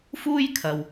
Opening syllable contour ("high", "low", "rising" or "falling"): high